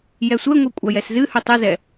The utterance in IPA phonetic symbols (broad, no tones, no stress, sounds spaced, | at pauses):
j ɛ sʷ ɛ ŋʷ ɨ kʷʼ a j ɛ s z ɨ h ʉ tˤ ɨ z ɛ